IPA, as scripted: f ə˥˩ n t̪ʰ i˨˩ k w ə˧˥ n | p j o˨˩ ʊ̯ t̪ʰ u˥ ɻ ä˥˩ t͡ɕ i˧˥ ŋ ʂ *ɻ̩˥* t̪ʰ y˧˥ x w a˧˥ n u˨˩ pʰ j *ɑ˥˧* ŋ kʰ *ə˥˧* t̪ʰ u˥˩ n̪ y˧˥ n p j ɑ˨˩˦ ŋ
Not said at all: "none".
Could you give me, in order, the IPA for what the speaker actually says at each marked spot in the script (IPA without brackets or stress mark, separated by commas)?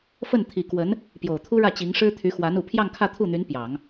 ɻ̩˥, ɑ˥˧, ä˥˧